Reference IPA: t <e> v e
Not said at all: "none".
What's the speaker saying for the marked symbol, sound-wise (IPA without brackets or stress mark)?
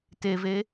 e